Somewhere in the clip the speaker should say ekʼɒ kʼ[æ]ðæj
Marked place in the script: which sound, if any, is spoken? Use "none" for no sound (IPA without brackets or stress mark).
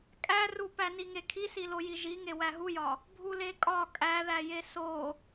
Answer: æ